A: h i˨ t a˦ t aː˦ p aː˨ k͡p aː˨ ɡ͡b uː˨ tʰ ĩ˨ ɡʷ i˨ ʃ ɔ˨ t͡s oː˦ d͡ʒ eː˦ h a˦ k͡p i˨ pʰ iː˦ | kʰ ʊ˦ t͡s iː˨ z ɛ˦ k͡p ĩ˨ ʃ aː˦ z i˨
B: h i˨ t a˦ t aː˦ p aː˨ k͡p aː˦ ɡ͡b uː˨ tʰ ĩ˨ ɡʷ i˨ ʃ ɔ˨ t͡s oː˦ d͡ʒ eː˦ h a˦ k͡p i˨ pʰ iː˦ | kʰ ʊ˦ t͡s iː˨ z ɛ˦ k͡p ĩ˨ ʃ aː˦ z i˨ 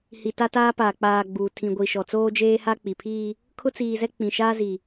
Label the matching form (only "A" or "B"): A